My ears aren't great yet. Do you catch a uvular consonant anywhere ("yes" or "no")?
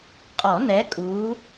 yes